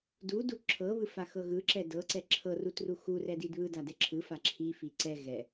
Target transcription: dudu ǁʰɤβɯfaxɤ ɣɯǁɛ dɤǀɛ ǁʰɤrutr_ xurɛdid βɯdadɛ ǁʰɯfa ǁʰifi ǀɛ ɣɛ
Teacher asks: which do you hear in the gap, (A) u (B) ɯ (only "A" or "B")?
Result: A